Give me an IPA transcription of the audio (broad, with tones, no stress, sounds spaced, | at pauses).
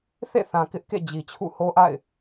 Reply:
θ ḛ˦˨ θ ã˨ k ɪ˦ ʔ k ḛ˦˨ d͡ʑ i˨ t͡ɕʰ ṵ˦˨ h o˦ ʔ a̰˦˨ ɪ̯